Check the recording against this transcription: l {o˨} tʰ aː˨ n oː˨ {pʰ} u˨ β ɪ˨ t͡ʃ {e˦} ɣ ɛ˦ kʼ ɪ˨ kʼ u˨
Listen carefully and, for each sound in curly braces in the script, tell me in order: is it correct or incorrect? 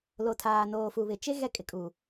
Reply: correct, incorrect: f, correct

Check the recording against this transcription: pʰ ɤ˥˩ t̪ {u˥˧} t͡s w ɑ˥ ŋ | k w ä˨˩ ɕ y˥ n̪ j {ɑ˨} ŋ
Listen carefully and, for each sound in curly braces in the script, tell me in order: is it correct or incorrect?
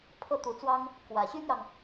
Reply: incorrect: u˧˥, correct

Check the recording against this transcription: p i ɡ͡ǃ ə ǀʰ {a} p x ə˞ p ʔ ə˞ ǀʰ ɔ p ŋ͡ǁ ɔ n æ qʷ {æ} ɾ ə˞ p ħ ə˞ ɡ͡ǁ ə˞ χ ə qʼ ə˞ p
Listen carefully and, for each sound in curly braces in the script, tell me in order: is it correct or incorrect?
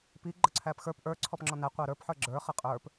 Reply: incorrect: æ, correct

